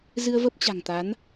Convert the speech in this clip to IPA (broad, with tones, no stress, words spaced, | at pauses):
zɨ˧ə̯və˦˥p̚t͡ɕa̤˨˩ŋt̪a˨˦n